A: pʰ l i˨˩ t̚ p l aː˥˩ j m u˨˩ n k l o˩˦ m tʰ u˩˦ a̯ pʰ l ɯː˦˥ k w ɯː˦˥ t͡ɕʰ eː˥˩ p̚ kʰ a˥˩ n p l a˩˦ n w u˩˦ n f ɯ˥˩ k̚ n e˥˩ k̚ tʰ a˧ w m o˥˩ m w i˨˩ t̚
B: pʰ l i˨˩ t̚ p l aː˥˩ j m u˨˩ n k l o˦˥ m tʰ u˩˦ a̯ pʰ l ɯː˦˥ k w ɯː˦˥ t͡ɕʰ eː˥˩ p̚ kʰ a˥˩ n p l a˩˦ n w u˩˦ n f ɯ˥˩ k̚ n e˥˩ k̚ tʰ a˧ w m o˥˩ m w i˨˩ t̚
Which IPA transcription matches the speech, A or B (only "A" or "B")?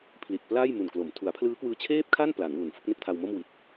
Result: A